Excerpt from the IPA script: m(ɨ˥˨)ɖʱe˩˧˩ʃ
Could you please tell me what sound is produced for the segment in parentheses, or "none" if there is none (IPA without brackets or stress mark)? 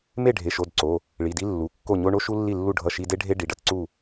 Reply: e˥˨